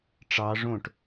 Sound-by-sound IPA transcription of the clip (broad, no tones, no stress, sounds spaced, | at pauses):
ʈ͡ʂ ɑ ʐ õ ʈ